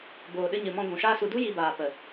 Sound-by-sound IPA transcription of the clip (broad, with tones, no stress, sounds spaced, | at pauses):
b oː˨ ɗ ɨ˧ ɲ ɨ˨ m ɔ̃˧ ɡʷ ũ˨ ʃ aː˧ s u˨ d u˦ j i˧ b aː˨ p ə˨